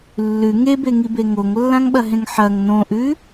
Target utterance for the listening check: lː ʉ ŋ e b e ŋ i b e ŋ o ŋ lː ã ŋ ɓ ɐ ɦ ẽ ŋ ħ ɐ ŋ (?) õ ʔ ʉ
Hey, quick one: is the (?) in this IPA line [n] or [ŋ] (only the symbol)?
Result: n